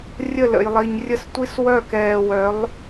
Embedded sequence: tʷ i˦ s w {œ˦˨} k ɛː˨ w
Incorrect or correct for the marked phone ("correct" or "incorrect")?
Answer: correct